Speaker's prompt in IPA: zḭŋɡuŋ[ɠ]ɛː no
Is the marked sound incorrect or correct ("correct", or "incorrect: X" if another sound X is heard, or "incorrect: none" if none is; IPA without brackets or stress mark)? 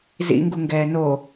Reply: incorrect: ɡ